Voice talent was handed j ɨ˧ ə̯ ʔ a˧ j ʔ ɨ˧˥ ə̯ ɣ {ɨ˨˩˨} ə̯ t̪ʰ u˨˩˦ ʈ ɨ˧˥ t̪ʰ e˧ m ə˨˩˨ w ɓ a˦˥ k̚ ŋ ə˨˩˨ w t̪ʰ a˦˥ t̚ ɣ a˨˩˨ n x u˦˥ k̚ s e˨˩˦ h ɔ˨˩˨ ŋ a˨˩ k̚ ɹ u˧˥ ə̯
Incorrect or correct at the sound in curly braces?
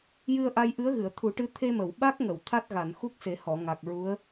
correct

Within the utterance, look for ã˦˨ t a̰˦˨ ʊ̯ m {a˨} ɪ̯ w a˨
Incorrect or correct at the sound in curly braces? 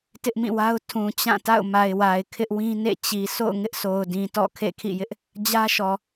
correct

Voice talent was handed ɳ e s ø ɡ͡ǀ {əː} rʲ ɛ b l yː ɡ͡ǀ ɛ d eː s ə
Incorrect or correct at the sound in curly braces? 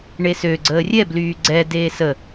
correct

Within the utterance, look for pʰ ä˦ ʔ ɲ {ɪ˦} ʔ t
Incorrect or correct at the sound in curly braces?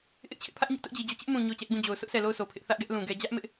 correct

